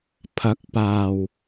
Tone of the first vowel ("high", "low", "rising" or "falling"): rising